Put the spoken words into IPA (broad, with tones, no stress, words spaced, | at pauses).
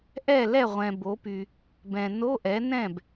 ʔɛ˥˩ lɛ˥˩ʁʷɛ̃˨bo˩˥py˨ | bɛ̃˨ no˧˥˧ʔɛ˩˥nɛ̃˥˩b